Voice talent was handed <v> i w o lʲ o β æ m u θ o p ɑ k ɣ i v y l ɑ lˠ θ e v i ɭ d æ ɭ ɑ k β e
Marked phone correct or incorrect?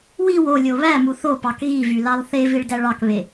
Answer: incorrect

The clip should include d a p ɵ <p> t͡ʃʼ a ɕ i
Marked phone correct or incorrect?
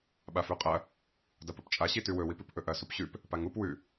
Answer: correct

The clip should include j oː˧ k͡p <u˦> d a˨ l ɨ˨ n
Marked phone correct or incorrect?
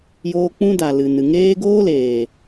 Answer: incorrect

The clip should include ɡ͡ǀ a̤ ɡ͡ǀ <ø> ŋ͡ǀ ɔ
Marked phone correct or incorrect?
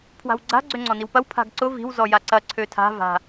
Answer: correct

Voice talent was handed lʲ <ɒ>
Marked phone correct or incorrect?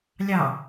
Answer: incorrect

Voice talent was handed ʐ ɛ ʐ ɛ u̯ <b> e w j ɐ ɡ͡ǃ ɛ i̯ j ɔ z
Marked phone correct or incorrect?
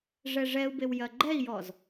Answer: correct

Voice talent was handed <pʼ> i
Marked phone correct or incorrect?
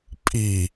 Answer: correct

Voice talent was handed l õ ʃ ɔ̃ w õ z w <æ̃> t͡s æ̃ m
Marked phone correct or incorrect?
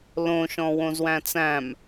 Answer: correct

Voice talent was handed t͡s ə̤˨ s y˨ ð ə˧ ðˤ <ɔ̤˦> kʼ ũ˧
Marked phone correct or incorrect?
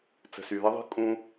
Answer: incorrect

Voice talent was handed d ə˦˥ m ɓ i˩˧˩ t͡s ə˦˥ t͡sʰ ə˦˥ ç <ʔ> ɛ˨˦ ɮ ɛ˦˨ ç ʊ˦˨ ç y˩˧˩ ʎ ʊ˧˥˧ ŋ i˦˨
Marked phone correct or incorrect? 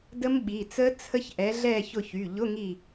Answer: correct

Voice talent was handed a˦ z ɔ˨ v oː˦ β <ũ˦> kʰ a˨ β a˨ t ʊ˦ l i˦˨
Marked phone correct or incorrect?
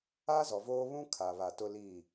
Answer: correct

